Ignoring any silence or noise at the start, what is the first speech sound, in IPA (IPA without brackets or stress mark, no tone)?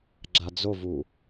ɡ͡ǁ